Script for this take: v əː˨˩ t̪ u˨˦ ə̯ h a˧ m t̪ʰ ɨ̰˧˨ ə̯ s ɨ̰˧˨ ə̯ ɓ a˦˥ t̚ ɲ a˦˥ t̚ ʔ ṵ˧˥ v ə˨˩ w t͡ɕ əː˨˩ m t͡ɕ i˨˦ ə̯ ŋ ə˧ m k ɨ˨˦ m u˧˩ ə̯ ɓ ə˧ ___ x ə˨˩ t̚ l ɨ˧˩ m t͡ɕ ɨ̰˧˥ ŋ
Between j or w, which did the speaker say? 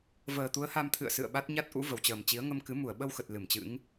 w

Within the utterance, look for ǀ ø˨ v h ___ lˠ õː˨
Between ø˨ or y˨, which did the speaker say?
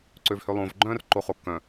ø˨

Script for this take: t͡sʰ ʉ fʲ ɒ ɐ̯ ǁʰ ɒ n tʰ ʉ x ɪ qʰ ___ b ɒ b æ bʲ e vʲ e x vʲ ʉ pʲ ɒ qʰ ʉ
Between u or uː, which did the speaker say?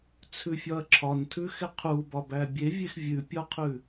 u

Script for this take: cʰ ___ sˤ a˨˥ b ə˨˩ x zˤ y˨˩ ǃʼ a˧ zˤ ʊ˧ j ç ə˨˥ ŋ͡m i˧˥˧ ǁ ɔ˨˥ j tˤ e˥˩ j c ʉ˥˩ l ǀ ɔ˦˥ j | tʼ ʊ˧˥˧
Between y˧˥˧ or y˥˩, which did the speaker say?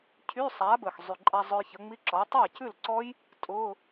y˧˥˧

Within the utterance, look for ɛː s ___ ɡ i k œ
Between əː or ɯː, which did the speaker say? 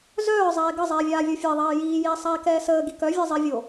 əː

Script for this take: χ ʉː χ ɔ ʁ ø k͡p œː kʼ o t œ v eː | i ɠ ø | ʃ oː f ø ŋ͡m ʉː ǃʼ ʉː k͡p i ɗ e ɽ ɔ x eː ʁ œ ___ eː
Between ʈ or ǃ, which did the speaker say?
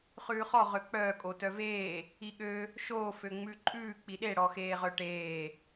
ʈ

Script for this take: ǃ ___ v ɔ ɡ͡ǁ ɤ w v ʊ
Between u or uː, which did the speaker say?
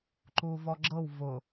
uː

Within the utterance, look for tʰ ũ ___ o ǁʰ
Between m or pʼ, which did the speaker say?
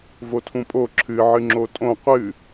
pʼ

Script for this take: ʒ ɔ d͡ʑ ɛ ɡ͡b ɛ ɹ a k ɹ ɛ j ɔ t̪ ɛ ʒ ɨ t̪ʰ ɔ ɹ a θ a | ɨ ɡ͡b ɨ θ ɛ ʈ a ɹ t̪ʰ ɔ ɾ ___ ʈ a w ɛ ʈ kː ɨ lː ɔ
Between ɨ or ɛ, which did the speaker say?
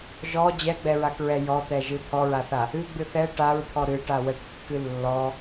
ɨ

